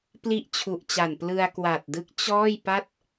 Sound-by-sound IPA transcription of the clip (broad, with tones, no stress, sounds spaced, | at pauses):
p l i˦˥ ʔ t͡ɕʰ u˨˩ ʔ t͡ɕ a˨˩ n p l ɯ˧ a̯ k w a˨˩ t̚ d ɯ˦˥ k̚ t͡ɕ ɔː˥˩ j p a˥˩ t̚